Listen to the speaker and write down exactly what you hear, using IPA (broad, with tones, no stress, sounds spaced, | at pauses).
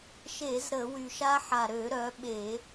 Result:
ʃ e˧˩˧ z ɾ ə˧˩˧ w y˨˩ ʃ a˦˥ ħ a˨˩ ɾ ø˧˩˧ ɾ œ˩˧ ɓ e˧˩˧